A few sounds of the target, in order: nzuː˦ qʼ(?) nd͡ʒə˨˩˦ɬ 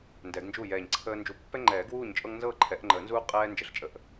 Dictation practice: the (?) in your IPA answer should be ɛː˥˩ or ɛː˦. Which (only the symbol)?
ɛː˦